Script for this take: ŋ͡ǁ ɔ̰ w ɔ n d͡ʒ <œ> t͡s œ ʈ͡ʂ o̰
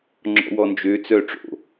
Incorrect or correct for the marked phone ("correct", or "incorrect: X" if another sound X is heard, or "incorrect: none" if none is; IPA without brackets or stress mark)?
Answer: incorrect: ø